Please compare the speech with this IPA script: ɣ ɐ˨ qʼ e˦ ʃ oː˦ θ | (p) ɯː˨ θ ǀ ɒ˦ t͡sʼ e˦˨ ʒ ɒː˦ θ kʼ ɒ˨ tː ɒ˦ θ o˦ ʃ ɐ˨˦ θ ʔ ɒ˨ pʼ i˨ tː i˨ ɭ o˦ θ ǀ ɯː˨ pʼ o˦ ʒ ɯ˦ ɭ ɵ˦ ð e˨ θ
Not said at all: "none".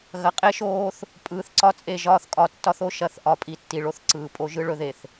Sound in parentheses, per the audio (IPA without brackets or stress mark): pʼ